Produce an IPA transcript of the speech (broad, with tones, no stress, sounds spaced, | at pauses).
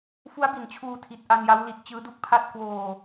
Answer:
f u˦˥ a̯ b i˩˦ n t͡ɕʰ uː˧ tʰ i˨˩ t̚ ʔ a˧ n j a˦˥ w l i˨˩ t̚ t͡ɕ ɯː˦˥ d u˦˥ k̚ pʰ a˥˩ t̚ k w oː˧